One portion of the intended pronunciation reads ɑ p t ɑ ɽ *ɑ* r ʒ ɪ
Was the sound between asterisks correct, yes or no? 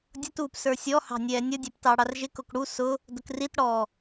yes